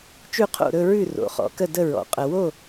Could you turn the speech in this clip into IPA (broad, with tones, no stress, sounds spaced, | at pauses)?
t͡ʃ ʉ˥˩ qʰ o̰˥˩ ɾ ɵ˥˧ ɹ ʉ˥˩ r o̰˩˥ χ ɔ̰˩˥ k ə˥˩ d ə˥˩ ɹ ɔ̰˩˥ qʼ ə˨ w o˥˩